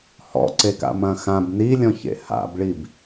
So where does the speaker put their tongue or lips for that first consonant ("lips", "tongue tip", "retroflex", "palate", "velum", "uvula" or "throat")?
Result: throat